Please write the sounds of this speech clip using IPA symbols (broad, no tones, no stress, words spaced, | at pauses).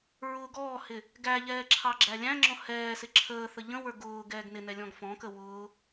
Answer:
ɹʊːɡɔːhɪ | ɡæʎɛː ǁʰɑɡ͡ǁælʲæ̃ŋ͡ǁɔ̃ hɛː sɪǁʰəːθə ʎə̃wə˞ ɡʊː ɡɛːɡnɪnɛ lʲɔ̃ɡfɔ̃kə wʊː